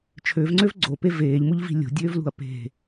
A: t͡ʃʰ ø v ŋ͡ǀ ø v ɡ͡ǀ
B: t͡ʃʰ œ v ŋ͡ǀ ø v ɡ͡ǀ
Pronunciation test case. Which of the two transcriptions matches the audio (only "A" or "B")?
A